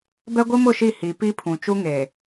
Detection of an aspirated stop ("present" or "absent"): present